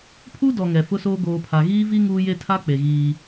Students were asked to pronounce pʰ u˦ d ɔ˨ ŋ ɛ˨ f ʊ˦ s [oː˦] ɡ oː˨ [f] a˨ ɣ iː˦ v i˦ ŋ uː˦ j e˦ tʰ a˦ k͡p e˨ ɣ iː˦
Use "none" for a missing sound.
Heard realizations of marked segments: oː˦, pʰ

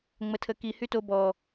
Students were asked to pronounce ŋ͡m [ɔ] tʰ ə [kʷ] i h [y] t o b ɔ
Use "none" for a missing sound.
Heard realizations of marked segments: ə, k, y

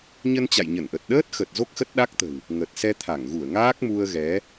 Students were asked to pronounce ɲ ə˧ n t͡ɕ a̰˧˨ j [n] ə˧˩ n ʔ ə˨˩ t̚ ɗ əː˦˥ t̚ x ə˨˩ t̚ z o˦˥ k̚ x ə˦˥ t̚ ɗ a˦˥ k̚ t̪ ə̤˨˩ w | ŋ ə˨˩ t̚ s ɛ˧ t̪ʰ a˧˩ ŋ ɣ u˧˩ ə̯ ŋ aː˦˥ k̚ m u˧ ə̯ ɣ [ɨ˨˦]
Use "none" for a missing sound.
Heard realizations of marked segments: ɲ, ɛ˨˦

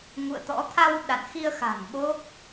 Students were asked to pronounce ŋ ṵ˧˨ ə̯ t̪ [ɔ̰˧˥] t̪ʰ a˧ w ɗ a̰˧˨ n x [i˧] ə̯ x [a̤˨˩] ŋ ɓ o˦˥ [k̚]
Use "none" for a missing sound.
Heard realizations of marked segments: ɔ̰˧˥, i˧, a̤˨˩, k̚

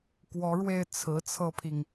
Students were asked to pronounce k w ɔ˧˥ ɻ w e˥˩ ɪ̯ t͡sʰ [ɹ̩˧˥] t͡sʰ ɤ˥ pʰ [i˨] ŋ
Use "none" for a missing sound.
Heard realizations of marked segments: ɹ̩˧˥, i˨

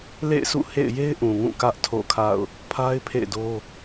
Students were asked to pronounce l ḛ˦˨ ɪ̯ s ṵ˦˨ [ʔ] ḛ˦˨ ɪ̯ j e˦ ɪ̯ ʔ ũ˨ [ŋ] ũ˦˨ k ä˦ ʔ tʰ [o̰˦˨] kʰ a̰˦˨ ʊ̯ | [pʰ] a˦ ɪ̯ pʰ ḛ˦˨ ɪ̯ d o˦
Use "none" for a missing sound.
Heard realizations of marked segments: h, ŋ, o̰˦˨, pʰ

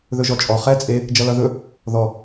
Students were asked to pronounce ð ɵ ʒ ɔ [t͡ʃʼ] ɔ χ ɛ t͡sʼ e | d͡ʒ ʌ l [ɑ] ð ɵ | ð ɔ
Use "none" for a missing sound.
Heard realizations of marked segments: t͡ʃʼ, ʌ

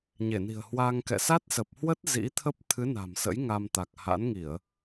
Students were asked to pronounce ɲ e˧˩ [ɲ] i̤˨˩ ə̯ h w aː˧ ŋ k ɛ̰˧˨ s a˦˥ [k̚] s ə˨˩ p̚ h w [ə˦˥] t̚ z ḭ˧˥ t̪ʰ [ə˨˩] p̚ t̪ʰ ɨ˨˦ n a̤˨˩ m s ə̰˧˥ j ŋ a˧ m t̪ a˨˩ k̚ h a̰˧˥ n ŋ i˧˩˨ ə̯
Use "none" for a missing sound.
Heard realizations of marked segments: n, t̚, ə˦˥, ə˦˥

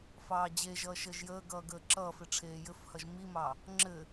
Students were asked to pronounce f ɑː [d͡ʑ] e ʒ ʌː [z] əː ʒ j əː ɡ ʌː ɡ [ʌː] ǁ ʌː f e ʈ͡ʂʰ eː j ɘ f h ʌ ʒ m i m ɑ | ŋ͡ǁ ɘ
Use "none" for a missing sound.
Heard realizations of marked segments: d͡ʑ, ʃ, əː

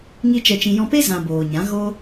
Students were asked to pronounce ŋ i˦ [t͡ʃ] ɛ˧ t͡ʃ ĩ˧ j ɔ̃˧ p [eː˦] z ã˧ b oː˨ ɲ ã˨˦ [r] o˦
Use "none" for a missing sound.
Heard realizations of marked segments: t͡ʃ, e˦, ɣ

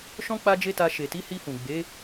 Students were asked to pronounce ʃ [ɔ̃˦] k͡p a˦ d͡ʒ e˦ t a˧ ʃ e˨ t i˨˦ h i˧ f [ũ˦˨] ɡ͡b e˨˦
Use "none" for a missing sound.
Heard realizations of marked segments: ɔ̃˦, ũ˨

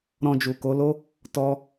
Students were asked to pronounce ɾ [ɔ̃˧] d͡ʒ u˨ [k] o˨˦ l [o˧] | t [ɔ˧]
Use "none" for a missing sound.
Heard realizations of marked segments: ɔ̃˧, k, o˦, ɔ˧

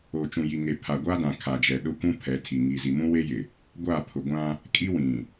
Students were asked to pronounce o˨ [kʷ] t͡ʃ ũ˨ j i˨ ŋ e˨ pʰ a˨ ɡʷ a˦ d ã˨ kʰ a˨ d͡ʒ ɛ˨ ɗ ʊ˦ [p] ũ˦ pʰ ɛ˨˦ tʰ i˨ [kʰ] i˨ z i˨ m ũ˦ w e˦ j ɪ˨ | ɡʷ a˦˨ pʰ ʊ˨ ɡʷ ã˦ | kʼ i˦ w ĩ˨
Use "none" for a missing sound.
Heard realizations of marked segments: none, kʷ, ŋ

